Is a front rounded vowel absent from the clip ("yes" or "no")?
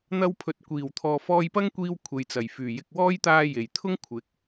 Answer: no